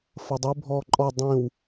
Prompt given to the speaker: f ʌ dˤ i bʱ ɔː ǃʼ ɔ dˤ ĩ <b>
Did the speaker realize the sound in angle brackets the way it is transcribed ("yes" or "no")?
no